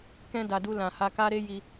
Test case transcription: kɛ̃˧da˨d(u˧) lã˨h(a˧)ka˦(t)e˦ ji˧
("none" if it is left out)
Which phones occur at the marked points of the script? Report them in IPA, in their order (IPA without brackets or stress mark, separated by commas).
u˧, a˧, ɾ